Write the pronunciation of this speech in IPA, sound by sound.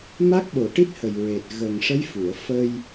m a˦˥ k̚ ɓ o˨˩ ʈ i˦˥ t̚ h ə˨˩ j ɹ e˨˩ t̚ ɣ ə˨˩ ŋ ʂ ə˧˥ j f u˨˩˨ ə̯ f ə˧ j

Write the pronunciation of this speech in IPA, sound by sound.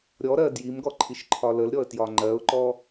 ɾʲ ɔ ɾ ɜ d j i m ɡ ɔ ǃʰ i ʃ ǃʰ ɒ l ə l ɾʲ ɔ ə̯ t j ɒ ŋ͡ǃ ɜ ʊ̯ ǃ ɔ

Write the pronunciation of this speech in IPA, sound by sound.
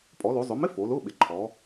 pʼ ɔ˩˧ l o˩˧ zˤ ʊ˩˧ m ɪ˧˥˧ f o˩˧ l ʊ˧˥˧ ɓ ɪ˩˧ ǃʰ ɔ˩˧

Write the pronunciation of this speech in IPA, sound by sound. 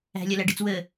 æ̤ lʲ ɐ l æ ɖ ɨ t͡s w ə

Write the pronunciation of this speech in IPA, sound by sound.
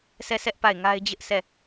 s ɛ˦˨ sʰ ɛ˦ ʔ p a˦˨ ɪ̯ ŋ a˦ ɪ̯ d͡ʑ ɪ˦ ʔ s ɛ˦˨

